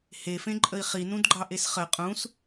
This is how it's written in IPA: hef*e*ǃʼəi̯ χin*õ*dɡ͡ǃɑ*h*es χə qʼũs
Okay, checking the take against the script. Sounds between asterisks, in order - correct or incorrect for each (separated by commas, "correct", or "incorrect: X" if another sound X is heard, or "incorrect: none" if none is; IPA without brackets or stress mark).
incorrect: ẽ, incorrect: ũ, incorrect: ʔ